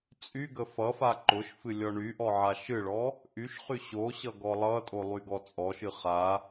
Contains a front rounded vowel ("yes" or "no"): yes